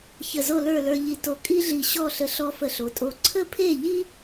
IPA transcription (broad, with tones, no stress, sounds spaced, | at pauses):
ç ə˧˩ z o˥˧ l ə˞˥˧ l ə˞˧ ʎ i˧˩ t o˧˩ kʼ i˥ ɮ i˧˩ ɕ ɔ˥˧ ɬ ə˧ ɬ ɔ˧ f ə˧˩ ɬ o˩˧ tʼ o˧˩ ǀʰ ə˥ pʰ e˥˧ ʎ i˥